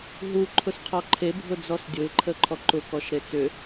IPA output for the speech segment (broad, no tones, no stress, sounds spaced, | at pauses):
ɦ u ǃʰ ʊ s qʰ ɔ ǃʰ e bʱ ʊ d͡z ɔ s dʲ ʊ ɪ̯ ǃʰ ə ǃʰ ɔ ǃ ʊ k ɔ ʃ ɾ e t͡s ʏ